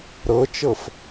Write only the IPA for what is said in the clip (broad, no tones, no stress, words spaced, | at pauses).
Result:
ɾɤt͡ʃɤf